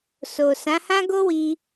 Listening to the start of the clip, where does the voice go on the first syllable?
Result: low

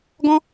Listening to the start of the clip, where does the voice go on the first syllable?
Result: high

